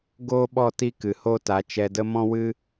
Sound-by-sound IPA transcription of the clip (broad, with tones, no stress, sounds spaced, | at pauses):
ɡ oː˦ ɓ ɔ˦˨ t i˦ k ɨ˨ h o˦ t a˨˦ t͡ʃ ɛ˧ d ə˦ m ɔ̃˦ w ɨ˦